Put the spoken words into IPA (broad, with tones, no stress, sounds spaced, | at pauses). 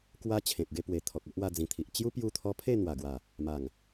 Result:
k w a˦ t͡ɕʰ ẽ˨ p̚ ɡ e˧ p w e˨˩ t̪ʰ ɔ˨ k̚ o˦ ʔ w a˧ d͡z ĩ˨˩ t̪ʰ i˨ ʔ t͡ɕ j u˦ p j u˧ t̪ʰ ɔ˧ pʰ e˥˧ n̪ w a˨˩ ɡ w a˨˩ | m a˨˩ ŋ